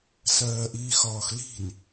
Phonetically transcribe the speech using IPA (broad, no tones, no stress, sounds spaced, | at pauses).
s ɜː ʔ iː x ɒː x l i̤ n